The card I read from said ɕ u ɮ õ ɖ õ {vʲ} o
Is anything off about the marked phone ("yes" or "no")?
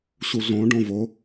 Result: yes